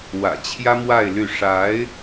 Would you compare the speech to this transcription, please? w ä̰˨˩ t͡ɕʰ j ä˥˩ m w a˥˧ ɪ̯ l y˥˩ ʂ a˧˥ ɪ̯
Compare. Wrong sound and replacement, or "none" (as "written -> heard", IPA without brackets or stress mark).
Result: ä˥˩ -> ä˥